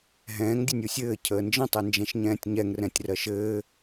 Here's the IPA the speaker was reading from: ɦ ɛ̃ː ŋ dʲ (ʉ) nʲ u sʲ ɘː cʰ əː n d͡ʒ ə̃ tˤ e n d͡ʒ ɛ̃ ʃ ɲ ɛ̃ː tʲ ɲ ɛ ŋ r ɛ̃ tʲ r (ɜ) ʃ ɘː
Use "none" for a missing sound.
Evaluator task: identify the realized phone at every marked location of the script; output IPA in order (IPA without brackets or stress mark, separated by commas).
ɘ, ɜ